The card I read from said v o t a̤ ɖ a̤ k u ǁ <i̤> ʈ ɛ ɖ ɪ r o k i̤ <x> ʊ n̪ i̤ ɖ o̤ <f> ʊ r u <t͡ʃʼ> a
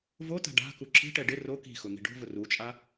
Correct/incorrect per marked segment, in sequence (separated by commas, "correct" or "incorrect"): correct, correct, incorrect, correct